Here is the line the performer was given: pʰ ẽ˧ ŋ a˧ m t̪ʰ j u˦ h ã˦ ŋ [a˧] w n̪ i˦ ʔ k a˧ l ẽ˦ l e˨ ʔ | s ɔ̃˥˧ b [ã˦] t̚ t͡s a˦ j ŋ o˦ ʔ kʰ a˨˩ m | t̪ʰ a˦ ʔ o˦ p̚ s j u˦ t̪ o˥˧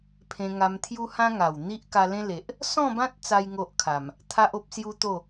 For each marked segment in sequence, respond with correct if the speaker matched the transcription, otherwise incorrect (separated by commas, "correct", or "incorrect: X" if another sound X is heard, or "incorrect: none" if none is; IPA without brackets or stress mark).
incorrect: a˨˩, correct